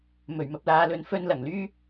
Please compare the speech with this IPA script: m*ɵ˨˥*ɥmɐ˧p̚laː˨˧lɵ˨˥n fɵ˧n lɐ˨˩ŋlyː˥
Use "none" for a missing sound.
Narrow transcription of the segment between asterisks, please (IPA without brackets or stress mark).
ɵ˨˩